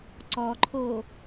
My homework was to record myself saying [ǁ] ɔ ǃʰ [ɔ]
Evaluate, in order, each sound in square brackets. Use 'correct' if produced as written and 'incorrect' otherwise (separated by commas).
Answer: incorrect, incorrect